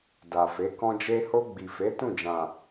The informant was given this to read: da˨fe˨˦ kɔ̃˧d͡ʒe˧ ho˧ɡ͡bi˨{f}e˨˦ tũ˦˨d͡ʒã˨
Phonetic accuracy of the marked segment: correct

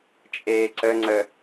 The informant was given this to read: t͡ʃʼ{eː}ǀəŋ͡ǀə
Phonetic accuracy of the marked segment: correct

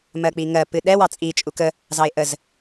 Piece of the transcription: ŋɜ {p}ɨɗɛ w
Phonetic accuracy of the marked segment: correct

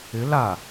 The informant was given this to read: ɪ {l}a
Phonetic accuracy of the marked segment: correct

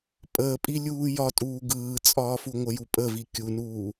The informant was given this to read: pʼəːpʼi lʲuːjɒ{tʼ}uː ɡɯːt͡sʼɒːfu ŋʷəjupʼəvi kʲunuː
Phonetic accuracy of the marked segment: correct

